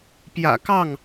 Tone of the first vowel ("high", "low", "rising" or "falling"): low